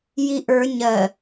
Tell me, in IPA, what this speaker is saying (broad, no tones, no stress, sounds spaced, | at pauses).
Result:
j i ʔ ə˞ ɲ ɜ